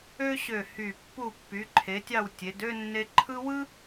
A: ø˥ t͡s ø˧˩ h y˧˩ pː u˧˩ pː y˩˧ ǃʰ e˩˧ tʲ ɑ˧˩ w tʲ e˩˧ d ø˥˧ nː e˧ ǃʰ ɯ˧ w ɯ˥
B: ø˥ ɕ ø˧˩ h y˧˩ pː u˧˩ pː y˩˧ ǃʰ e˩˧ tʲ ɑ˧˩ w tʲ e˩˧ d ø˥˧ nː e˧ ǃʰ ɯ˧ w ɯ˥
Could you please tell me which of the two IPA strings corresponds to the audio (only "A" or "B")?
B